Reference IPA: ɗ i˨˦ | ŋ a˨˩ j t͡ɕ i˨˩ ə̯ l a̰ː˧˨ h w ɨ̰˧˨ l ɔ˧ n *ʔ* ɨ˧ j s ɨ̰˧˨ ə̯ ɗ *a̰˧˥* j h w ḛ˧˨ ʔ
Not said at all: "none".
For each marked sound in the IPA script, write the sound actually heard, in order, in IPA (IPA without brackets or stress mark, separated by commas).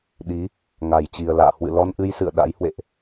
ʔ, a̰˧˥